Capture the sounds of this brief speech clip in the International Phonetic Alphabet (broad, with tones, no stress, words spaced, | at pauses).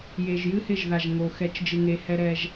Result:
je˨ʒjɨ˦ hɪ˦˨ʒða˨ʒ ŋo˨ xɛ˨˦t͡ʃd͡ʒɨ˨ŋe˨˦ hɛ˦ɾɛ˦ʒ